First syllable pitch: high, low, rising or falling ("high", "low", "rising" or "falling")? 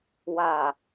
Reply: low